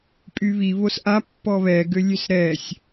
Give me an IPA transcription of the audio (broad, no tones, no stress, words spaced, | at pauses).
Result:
pʼyβi βosʔa pːɔβɛ ɡølʲøsɾɛsʲ